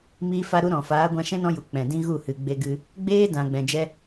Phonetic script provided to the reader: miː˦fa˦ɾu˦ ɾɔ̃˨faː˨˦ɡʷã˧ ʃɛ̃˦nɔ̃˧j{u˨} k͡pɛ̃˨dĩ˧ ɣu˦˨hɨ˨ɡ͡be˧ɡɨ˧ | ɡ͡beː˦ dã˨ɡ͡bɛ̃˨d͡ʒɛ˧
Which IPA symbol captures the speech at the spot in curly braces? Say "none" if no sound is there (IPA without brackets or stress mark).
u˨